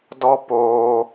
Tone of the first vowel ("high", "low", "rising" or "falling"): high